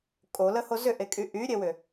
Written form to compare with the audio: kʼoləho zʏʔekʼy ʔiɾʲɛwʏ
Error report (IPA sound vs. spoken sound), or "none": i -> y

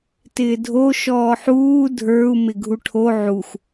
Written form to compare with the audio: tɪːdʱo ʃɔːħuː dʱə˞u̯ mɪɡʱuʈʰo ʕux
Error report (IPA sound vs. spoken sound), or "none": none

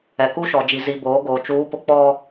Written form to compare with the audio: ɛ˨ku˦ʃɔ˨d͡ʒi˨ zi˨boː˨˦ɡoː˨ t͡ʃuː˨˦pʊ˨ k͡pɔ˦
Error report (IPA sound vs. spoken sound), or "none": none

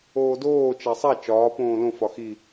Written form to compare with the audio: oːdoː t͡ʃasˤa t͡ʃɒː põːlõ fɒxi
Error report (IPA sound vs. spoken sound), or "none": none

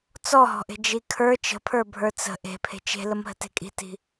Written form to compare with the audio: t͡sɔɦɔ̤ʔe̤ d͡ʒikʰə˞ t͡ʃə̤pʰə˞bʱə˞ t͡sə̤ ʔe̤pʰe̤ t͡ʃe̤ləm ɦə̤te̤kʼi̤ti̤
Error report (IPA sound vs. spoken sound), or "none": none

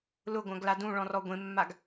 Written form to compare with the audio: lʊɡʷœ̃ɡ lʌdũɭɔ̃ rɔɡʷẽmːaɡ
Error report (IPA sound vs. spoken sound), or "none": ʌ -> a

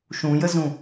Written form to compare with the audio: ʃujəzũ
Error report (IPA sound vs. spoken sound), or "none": u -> ũ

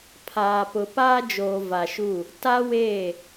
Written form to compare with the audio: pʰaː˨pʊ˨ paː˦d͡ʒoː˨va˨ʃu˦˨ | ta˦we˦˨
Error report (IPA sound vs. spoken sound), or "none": none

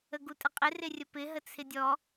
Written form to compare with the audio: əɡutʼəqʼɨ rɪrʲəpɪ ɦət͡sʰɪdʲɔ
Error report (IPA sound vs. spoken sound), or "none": ɨ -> ɪ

